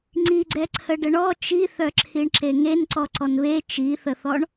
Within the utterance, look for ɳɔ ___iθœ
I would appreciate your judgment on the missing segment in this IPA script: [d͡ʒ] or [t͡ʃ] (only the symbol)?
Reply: t͡ʃ